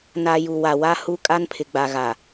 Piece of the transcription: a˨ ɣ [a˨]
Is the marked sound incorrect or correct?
correct